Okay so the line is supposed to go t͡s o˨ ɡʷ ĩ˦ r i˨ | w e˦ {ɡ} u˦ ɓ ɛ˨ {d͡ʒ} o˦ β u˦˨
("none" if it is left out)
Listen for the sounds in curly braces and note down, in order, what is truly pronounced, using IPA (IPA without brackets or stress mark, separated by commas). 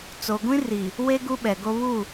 ɡ, ɡ